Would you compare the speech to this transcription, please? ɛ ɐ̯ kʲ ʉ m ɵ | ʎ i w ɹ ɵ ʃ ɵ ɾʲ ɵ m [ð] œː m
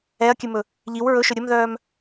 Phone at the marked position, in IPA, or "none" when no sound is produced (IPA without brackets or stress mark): ð